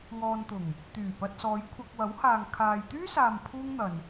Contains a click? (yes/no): no